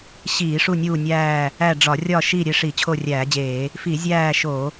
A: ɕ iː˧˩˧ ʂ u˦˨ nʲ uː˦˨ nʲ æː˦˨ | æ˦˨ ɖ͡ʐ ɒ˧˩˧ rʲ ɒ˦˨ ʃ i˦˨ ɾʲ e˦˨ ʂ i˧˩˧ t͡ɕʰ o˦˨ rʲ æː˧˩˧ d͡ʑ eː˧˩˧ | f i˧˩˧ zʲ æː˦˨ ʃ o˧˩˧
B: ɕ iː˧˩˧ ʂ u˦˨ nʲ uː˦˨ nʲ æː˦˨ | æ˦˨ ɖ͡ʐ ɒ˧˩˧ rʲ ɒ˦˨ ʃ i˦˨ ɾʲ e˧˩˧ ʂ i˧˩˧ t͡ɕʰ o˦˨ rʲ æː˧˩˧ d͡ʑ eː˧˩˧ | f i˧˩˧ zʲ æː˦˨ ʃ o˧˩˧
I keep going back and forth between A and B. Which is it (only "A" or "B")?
A